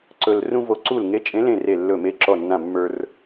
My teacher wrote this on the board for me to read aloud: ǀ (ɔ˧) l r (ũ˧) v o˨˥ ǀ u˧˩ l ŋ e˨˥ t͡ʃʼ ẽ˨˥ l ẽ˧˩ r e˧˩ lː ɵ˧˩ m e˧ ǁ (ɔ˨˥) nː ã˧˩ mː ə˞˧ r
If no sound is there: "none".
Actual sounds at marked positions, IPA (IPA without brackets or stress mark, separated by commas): ɵ˧, ũ˧, ɔ˧˩